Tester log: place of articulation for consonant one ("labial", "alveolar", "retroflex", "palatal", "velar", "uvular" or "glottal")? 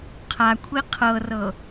uvular